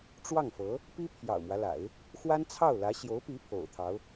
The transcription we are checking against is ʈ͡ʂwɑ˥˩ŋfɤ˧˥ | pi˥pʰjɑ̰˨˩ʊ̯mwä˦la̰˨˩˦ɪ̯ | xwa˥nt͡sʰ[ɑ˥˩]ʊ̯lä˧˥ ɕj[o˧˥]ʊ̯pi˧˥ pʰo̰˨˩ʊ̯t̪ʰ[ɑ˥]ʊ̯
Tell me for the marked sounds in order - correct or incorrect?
correct, correct, incorrect

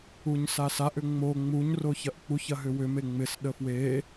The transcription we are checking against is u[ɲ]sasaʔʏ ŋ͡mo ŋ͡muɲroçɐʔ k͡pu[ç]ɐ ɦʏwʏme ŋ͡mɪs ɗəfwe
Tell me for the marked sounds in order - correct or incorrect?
correct, correct

